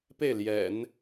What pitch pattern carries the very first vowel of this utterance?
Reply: falling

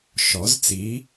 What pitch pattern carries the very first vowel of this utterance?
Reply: rising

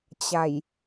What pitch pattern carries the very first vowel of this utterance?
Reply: low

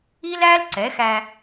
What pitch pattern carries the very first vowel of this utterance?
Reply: high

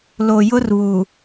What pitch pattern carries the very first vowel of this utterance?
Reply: low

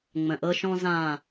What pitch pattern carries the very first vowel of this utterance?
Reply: low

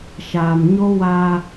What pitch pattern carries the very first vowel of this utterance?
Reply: low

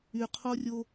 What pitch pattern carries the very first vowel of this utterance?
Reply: low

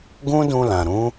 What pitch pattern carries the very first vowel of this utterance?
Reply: high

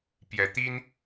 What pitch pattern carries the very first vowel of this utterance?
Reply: rising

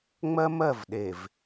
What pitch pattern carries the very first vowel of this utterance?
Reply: high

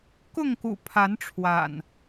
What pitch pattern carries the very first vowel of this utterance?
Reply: falling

